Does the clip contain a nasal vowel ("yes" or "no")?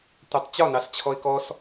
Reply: no